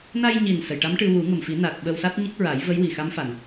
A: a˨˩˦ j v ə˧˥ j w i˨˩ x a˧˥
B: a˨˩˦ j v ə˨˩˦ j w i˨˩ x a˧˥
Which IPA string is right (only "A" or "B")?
A